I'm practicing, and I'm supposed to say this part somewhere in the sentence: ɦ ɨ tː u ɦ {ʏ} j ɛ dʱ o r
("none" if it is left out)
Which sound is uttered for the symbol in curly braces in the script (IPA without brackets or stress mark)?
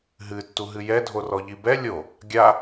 ɨ